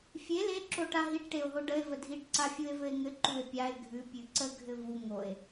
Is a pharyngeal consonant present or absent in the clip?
absent